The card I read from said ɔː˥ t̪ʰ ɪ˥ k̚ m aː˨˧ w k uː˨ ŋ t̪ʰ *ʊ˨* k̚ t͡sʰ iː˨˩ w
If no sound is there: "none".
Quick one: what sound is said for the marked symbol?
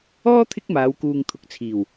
ʊ˨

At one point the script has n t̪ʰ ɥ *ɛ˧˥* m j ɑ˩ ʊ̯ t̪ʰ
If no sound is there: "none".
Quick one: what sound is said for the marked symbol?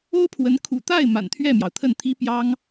ɛ˥˩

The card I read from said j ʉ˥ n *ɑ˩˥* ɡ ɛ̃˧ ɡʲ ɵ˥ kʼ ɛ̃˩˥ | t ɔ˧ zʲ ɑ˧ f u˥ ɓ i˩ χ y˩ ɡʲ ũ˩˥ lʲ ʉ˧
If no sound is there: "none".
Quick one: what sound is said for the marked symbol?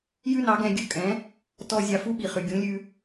ɑ˩˥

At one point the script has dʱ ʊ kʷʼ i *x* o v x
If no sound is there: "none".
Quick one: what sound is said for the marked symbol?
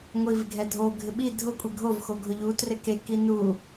ɡʱ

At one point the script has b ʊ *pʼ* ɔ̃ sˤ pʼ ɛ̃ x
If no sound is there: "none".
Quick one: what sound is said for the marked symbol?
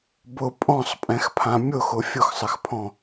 pʼ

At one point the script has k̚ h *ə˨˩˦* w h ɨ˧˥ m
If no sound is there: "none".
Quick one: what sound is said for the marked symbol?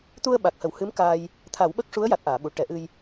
ə˨˩˦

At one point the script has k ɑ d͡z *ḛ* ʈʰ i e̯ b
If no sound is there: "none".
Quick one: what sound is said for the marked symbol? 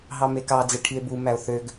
e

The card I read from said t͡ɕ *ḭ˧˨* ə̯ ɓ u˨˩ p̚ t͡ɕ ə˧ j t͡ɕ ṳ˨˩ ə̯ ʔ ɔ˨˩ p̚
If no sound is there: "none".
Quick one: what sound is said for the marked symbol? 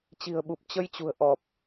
i̤˨˩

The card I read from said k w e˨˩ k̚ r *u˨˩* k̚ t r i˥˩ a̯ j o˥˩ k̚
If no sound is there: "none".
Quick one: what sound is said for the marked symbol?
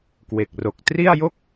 o˨˩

